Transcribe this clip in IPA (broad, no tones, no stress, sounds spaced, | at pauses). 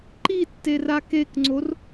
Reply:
ǃ i tː e r a k e k ŋ͡ǀ o r